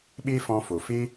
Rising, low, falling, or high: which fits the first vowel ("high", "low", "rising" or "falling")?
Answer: high